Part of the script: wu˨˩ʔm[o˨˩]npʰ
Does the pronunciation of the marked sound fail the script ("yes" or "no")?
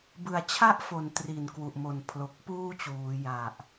no